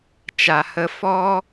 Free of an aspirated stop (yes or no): yes